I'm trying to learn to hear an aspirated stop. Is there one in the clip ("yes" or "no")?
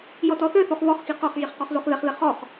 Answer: no